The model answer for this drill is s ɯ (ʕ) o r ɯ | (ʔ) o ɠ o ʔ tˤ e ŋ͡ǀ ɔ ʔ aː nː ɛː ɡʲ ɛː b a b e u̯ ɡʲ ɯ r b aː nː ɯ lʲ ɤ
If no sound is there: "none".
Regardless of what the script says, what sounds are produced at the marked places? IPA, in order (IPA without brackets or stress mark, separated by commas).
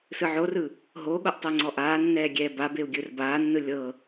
ʕ, ɦ